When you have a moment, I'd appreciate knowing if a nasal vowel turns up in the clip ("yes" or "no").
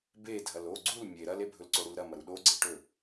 no